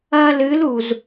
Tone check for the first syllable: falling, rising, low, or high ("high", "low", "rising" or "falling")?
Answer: high